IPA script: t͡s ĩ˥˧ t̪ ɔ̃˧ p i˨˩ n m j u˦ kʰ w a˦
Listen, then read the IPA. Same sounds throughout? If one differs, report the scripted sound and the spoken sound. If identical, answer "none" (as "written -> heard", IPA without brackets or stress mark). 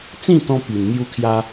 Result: w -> j